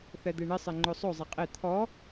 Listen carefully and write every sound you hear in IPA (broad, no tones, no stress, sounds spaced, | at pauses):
θ ɛ d̪ e ɳ ɪ sˤ e ŋ͡ǃ o sˤ o zˤ ɛ qʼ e t̪ʰ ɔ